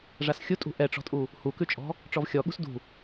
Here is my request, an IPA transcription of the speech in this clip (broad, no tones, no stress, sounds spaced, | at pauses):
ʐ a s xʲ u tʼ ṳ ʔ ɛ ʈ͡ʂ ɔ̤ tʼ u | h u k ʉ t͡ʃʼ ɔ̤ | ʈ͡ʂ ɔ v xʲ ɔ ɠ ṳ s d ṳ